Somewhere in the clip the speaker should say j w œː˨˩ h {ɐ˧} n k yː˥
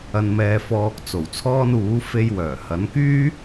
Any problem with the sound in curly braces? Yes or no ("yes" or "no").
yes